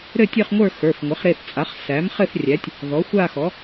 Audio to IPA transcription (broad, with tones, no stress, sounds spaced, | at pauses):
ɾ ɘ˥˧ tʲ ɘ˥˧ χ ŋʷ ə˞˥˧ x ə˞˩˧˩ f ŋʷ ɘ˩˥ χ ɾ e˩˧˩ θ t͡sʼ a˩˥ χ s æ˩˥ m χ ɘ˥˧ θ rʲ æ˩˥ tʲ | ð ɔ˩˥ xʷ a˥˧ x ɔ˩˥